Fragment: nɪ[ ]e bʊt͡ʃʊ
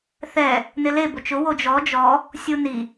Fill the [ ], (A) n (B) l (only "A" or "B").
B